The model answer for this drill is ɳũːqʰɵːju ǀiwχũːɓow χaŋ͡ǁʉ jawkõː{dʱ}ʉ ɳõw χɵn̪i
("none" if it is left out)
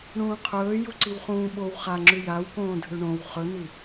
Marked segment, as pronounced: dʱ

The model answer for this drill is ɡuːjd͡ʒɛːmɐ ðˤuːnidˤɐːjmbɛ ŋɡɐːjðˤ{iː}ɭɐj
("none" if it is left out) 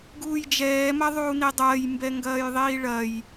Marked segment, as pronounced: iː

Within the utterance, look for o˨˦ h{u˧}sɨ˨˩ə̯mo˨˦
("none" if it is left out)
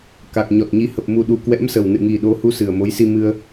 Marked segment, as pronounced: u˧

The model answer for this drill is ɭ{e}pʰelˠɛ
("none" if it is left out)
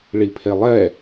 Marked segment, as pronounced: i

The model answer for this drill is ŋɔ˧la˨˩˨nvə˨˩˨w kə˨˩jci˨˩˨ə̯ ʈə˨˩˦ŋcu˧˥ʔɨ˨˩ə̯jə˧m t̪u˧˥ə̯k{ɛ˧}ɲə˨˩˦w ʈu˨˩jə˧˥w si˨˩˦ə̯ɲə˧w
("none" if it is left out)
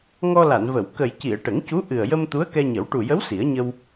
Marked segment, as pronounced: ɛ˧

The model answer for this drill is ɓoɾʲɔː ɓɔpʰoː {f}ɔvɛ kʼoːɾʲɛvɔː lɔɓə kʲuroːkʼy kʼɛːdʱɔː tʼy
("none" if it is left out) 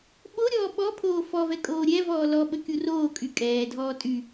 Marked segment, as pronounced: f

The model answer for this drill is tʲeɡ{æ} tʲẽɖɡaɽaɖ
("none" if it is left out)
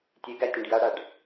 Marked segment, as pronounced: æ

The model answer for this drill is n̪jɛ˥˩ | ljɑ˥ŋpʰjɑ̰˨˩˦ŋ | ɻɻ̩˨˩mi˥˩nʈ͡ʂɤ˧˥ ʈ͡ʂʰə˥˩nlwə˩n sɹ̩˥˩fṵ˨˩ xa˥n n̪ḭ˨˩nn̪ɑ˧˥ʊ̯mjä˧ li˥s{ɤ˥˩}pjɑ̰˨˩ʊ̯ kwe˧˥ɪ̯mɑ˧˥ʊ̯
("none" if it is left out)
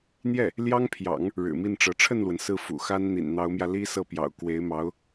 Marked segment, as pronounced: ɤ˥˩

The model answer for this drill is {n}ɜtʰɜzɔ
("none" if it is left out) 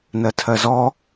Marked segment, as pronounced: n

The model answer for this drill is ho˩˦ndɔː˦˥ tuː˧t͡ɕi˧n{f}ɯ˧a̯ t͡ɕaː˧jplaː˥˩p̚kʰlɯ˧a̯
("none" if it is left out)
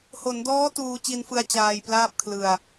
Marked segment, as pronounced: f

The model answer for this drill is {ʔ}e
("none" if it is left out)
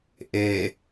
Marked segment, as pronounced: ʔ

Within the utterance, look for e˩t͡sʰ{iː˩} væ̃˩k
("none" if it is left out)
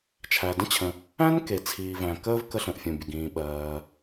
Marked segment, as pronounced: iː˩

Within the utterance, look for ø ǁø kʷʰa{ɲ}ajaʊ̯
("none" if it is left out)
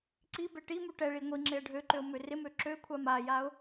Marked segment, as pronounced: m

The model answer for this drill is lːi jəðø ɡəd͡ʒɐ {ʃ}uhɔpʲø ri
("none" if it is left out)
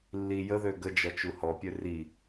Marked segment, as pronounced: t͡ʃ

